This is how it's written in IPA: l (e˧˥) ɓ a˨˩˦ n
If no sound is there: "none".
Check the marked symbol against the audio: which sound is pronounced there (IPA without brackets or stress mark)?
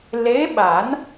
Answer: e˧˥